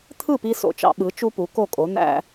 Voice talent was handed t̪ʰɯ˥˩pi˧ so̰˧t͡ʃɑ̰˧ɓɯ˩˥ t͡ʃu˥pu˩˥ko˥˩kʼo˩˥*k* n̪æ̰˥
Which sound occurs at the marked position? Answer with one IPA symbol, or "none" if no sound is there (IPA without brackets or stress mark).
none